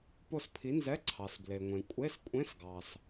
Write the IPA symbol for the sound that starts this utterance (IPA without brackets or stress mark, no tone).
p